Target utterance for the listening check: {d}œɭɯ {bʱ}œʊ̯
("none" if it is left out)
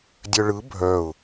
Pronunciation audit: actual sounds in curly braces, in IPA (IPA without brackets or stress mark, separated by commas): dʲ, bʱ